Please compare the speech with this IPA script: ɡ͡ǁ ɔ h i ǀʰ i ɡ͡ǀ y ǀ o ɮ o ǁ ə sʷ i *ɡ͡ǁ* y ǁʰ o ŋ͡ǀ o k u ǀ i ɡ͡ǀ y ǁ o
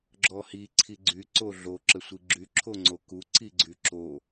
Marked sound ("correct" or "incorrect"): correct